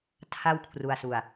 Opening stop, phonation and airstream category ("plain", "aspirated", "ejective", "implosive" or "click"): aspirated